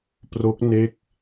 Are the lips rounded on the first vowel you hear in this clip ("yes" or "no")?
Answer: yes